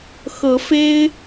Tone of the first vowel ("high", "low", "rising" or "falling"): rising